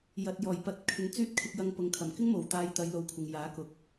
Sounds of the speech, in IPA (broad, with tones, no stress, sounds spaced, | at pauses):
j ɐ˨ t̚ j ɔː˨˩ j p ɐ˨˥ t̚ kʰ ɪ˨˧ ŋ t͡s yː˥ t̚ kʰ ɪ˧ k̚ j ɐ˧ ŋ p ʊ˨ ŋ kʰ ɐ˨˩ m k ɪ˥ ŋ m o˨˩ w t̪ aː˧ j t̪ ɐ˨˧ j l o˨˧ w kʷʰ ɪ˨ ŋ j aː˨˥ k ʊ˨˥ k̚